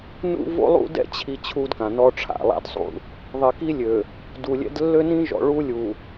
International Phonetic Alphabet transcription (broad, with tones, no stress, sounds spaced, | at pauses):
n ṵ˦ v o̰˦ lˠ ṵ˦ d ɛ̰˦ t͡ɕʰ i˨ t͡ɕʰ u˦ d k ã˨ n ɔ˦ ʈ͡ʂʰ a̰˨ lˠ a̰˦ d sˤ ṵ˦ | ðˤ i˨ k i˦ lʲ ø˨ | d u˨ lʲ ɛ̰˦ d lː ø˦ n ĩ˦ ʒ ɔ̰˨ ɭ u˦ lʲ u˨